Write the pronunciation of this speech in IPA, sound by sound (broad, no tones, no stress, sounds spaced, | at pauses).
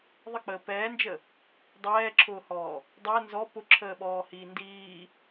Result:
ðˤ ə k͡p əː p ɛː n d͡ʒ ə | dˤ ɛː ǁʰ ʊː h ɔː | dˤ ɛ n z ɔ p ʊ ǁʰ əː ɓ ɔː h iː n d iː